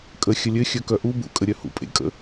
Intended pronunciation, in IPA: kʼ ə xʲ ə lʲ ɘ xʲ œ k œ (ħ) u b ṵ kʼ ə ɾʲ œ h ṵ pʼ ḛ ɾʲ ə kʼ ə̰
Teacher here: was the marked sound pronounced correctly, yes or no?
no